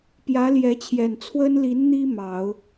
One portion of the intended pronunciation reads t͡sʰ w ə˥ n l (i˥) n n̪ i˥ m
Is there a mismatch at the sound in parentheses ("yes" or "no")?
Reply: yes